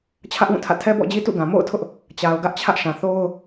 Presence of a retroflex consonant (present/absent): absent